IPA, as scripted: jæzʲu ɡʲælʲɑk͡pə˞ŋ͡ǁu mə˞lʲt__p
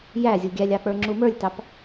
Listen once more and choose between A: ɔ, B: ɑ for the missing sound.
B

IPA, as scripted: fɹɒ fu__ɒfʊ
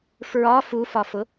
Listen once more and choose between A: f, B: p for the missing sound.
A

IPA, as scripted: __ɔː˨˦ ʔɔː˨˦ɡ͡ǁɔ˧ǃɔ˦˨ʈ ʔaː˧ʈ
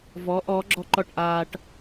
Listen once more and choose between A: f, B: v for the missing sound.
B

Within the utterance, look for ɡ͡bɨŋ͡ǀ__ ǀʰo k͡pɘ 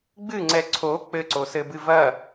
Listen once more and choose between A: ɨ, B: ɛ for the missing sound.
B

